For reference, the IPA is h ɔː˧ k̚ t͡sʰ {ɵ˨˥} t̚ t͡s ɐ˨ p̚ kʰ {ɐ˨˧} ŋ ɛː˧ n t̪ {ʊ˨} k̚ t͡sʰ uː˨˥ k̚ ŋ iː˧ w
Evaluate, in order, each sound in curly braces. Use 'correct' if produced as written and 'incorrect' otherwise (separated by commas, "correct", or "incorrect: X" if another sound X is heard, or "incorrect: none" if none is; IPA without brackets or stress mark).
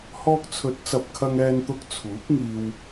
correct, incorrect: ɐ˧, incorrect: ʊ˧